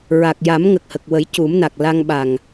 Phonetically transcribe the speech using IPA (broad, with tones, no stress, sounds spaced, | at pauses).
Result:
ɹ a˨˩ k̚ j a˨˩˦ m ŋ ə˨˩ k̚ h ə˨˩ k̚ w ə˨˩˦ j c u˨˩˦ m n a˨˩ k̚ l a˧ ŋ ɓ a˨˩ ŋ